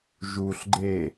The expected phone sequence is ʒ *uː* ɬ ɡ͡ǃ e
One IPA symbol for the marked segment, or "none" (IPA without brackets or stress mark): uː